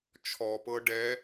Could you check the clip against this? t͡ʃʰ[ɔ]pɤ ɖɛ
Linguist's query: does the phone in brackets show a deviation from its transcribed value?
no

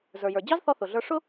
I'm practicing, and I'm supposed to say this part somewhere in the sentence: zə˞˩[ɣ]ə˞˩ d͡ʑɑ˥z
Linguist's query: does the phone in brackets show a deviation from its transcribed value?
yes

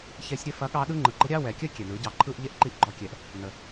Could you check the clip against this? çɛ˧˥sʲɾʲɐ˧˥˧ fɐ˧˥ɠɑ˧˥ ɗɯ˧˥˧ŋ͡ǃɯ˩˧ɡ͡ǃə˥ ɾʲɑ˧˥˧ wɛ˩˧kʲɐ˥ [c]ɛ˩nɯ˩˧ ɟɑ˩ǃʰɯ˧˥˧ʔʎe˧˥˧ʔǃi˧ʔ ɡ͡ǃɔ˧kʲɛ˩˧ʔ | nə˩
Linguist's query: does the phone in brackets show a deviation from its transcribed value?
yes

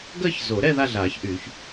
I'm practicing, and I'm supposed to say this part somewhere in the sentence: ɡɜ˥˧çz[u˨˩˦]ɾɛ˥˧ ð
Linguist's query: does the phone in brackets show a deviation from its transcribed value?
yes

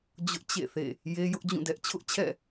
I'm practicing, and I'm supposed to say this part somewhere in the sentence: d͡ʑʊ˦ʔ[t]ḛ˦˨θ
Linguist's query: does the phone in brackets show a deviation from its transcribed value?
yes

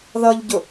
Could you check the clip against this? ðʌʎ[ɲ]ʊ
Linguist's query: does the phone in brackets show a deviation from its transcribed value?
yes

